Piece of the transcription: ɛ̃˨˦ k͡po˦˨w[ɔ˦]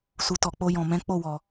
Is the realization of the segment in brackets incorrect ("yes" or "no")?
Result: yes